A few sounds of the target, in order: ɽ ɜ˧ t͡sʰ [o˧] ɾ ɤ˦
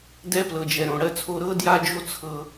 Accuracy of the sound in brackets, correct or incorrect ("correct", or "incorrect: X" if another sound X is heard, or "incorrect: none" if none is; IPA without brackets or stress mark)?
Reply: correct